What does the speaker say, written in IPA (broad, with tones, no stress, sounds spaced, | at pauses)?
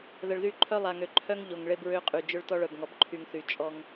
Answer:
ð ə˨ ɭ ð y˦˨ ǃʰ œ˦ lˠ a˨ ŋ ø˨ ǃʰ œ˦ ŋ ʎ o˨ ŋ ɭ e˦ b ɹ ø˦ qʼ y˨ d͡ʒ ø˦ ɭ t ɔ˦ ɭ œ˨ b ŋ ɔ˨ b ǃʰ y˨ ŋ θ y˨ t͡ʃʼ ɔ˦ ŋ